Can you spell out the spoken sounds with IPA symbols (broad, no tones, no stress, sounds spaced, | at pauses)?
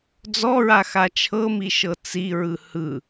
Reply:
d͡z ɔ ɹ a x a t͡ʃʰ ɤ m i ʃ ɤ t͡s i ɹ ɯ h ɯ